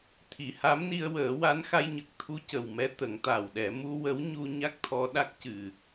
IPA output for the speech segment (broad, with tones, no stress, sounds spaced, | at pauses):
t̪ʰ i˨˩˨ h a˧˥ m n i˧ ə̯ w əː˨˩˦ w a˧˥ n x a˧ j ɲ ə˨˩ k̚ t̪ʰ u˧˥ c ə˨˩ w m ɛ˧˥ t̪ ə˨˩˦ ŋ t̪ a˨˩ w ɗ ɛ˨˩˦ m u˧ w ə˧˥ w ɲ u˧ ɲ a˦˥ k̚ t̪ʰ ɔ˧ ɗ a˦˥ k̚ c ɨ˨˩˨